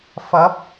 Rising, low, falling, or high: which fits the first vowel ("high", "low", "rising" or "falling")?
rising